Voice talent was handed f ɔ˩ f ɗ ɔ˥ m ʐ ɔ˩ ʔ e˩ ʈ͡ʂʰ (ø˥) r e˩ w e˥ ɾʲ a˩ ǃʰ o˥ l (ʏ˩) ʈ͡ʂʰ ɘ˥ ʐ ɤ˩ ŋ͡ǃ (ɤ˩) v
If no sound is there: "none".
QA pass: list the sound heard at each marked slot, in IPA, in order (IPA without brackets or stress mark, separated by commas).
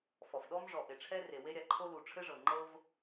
ɛ˥, u˩, ɤ˥